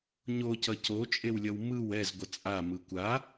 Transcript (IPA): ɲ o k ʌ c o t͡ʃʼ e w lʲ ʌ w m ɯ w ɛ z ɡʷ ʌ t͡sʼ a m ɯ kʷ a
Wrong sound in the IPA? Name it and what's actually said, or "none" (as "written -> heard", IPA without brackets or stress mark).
k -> c